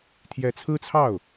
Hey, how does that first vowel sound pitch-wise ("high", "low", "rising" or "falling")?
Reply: rising